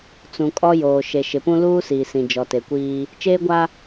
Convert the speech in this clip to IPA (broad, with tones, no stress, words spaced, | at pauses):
t͡sũ˨ kʼɔ˦joː˨ ʃe˨ʃɪ˨pũ˦ luː˦ siː˨sĩ˨ d͡ʒɔ˨te˨kʷiː˦ | t͡ʃeː˦ɡʷa˦